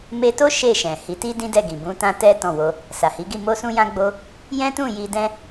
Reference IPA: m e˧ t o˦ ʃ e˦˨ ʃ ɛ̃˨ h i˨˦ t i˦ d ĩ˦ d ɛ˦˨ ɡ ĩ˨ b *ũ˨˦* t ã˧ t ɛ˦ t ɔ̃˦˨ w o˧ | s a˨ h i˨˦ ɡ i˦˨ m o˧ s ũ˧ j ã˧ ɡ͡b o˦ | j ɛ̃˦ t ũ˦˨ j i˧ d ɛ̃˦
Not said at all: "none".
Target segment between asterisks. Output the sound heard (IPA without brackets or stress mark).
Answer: ũ˨˦